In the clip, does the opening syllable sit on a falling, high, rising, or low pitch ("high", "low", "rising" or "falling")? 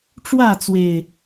falling